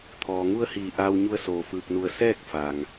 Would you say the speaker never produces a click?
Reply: yes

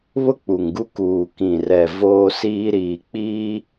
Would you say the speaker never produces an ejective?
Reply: yes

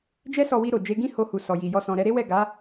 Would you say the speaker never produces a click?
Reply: yes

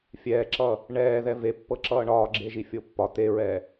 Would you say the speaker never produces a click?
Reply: no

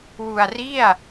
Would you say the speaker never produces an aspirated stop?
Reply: yes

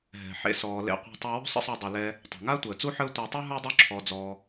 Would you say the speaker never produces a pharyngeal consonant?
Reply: no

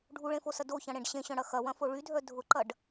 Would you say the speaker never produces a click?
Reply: no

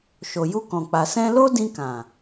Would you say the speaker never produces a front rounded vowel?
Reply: yes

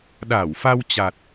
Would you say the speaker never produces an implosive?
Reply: no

